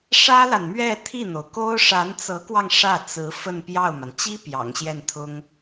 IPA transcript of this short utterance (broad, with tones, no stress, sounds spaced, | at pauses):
ʂ ä˥ l a˨ n m ɥ ɛ˥˧ t̪ʰ i˥˩ n̪ o˩ ʊ̯ k o˥ ʊ̯ ʂ a˧˥ n t͡s ɤ˧˥ k w ɑ˧ ŋ ʂ ä˥˩ t͡s ɹ̩˧˥ f ə˥˧ n p j ɑ˥˩ ʊ̯ m a˩ n t͡ɕ i˥ p j ɑ̰˨˩ ŋ ɕ j ɛ˥˩ n t̪ʰ ʊ˥ ŋ